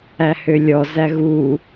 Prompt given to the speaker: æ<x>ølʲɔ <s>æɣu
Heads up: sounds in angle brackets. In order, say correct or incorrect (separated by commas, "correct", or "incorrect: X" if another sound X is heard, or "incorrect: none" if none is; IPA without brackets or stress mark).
incorrect: h, incorrect: z